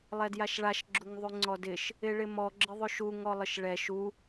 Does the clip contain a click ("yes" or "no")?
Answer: yes